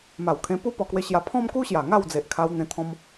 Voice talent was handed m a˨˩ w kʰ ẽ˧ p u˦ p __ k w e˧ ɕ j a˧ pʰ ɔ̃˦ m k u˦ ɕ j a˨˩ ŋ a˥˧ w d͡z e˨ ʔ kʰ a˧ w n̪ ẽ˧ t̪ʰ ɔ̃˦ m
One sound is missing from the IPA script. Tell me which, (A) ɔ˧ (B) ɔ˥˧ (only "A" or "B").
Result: A